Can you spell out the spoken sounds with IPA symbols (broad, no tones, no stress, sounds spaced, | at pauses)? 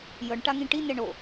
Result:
j ɤ ɳ ʈ a ŋ ĩ ʈ i n ɛ ɳ o